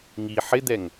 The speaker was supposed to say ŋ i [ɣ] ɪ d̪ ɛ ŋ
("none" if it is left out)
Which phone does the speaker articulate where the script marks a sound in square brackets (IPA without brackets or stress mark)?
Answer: ħ